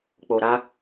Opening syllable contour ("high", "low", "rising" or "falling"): low